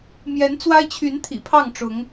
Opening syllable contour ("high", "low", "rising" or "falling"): rising